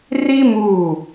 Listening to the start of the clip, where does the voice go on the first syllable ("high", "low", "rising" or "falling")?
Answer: high